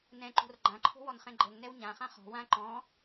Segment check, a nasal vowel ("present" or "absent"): present